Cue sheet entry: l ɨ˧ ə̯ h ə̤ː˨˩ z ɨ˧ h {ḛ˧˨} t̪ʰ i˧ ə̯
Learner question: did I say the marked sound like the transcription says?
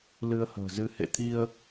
yes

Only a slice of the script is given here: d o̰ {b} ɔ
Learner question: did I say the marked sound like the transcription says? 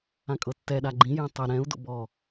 yes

